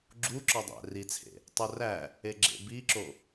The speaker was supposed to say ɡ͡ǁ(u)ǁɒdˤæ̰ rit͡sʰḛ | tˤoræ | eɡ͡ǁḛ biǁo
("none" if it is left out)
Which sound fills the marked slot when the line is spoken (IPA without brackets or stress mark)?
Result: u